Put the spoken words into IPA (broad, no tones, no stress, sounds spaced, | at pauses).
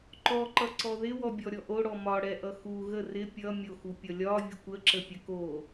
ǃ ɔ ǃ ʌ ǀ ɔ ð ɪ w ɔ bʲ ɔ ɾʲ ɔ ʔ o ɽ ɔ m ɒ ɽ ɛ ʔ ʌ x u ɣ ə r ɪ pʲ ʌ mʲ o x u pʲ ʌ lʲ ɒ vʲ ə kʷ ə ǁ ə pʲ ə k o